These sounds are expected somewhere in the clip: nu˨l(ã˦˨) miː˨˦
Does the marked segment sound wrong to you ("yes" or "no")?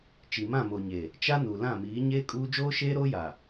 no